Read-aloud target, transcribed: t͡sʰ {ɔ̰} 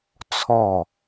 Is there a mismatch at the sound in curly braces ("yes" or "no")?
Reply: yes